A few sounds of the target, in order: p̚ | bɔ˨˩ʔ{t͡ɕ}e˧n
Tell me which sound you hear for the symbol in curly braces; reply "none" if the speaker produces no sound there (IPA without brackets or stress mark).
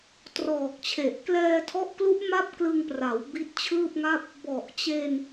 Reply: t͡ɕ